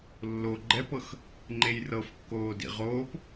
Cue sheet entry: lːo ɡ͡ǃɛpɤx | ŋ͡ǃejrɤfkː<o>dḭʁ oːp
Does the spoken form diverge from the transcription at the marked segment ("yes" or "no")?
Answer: yes